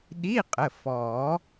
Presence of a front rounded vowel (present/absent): absent